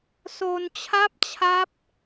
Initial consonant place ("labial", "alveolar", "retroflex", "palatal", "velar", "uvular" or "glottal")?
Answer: alveolar